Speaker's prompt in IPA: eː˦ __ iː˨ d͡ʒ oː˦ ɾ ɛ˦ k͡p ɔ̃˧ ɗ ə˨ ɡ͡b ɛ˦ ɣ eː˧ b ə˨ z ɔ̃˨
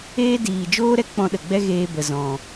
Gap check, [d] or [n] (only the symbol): d